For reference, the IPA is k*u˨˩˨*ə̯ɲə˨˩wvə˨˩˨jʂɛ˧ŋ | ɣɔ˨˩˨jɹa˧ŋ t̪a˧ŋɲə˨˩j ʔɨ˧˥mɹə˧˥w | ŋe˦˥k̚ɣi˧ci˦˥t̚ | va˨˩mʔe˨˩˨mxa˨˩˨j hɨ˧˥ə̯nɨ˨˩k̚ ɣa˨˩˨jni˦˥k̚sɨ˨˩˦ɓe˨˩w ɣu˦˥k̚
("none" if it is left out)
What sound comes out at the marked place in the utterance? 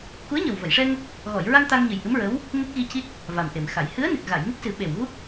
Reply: u˧˥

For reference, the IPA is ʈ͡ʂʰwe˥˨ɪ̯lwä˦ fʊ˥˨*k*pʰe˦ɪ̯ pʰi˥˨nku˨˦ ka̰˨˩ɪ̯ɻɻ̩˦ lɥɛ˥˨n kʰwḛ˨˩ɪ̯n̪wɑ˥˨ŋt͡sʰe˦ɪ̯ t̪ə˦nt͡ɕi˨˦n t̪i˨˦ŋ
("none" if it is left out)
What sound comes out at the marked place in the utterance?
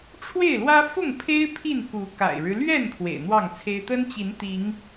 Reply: ŋ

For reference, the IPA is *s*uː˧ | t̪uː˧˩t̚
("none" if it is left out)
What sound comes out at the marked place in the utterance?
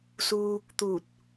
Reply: s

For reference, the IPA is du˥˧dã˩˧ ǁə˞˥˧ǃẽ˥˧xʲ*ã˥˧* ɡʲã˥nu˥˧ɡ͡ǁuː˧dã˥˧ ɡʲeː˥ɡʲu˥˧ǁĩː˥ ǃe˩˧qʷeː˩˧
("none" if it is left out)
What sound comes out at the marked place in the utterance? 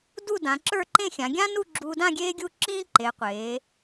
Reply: ã˩˧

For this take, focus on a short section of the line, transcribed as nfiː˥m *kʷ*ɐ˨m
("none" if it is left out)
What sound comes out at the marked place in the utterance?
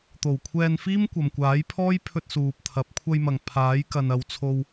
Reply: kʷ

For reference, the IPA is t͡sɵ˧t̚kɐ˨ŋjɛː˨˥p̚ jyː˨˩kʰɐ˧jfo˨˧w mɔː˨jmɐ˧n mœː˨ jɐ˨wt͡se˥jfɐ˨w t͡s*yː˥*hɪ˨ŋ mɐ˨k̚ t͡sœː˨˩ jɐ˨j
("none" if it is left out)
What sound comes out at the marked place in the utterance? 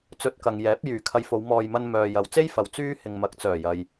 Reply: yː˥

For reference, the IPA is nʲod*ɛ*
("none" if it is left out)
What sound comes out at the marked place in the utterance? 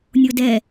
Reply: ɛ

